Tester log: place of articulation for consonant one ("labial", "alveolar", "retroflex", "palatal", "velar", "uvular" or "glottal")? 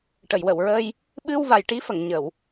retroflex